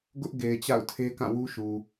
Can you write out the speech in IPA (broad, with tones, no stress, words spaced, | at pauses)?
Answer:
ɡʊ˦ʔ ɡe˨ɪ̯t͡ɕa̰˦˨ʊ̯tʰe˦ kã˦˨wu˦ʃu˨